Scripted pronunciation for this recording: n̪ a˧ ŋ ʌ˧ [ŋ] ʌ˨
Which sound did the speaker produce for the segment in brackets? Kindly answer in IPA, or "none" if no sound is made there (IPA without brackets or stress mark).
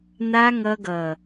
ɡ